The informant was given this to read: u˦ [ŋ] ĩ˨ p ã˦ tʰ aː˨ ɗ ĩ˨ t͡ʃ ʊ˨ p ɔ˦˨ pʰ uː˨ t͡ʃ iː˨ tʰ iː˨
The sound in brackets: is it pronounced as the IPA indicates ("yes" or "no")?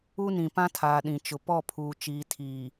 no